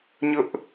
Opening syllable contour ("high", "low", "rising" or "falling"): high